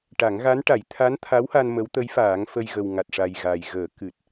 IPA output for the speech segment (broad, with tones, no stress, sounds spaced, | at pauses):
ʈ a˨˩˦ ŋ ɣ a˧˥ n ʈ a˨˩˦ j t̪ʰ a˧˥ n t̪ʰ a˧˥ w h a˧ n m ə˧˥ w t̪ ə˧˥ j f aː˨˩˦ ŋ f ə˧ j ɣ ə˨˩ w ŋ a˨˩ t̚ ʂ a˨˩ j ɣ a˨˩ j ɣ əː˨˩˦ k ɨ˨˩ t̚